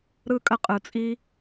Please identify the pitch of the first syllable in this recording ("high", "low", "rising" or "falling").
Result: falling